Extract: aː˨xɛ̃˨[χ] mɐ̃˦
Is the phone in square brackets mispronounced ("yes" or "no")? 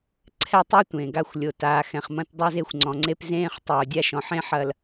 no